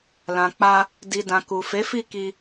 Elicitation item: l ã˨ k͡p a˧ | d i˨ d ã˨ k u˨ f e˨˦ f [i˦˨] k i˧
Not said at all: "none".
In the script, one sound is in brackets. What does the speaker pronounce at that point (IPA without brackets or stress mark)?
i˦˨